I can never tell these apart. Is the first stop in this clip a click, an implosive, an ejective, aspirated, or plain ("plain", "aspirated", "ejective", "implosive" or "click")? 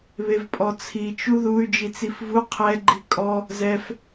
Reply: ejective